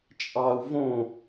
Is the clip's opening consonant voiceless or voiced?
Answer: voiceless